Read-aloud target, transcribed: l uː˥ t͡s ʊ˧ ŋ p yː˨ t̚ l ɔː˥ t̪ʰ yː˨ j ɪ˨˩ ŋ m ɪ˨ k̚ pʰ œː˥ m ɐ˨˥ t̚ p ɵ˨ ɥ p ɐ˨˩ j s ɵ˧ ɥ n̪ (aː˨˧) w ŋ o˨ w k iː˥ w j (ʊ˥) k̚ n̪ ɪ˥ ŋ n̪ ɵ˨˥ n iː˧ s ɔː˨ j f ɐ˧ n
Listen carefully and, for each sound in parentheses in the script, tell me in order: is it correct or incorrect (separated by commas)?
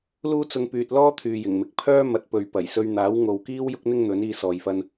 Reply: incorrect, correct